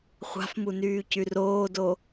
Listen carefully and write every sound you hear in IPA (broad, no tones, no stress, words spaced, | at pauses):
χʷa̤fmu nyːcyroːdo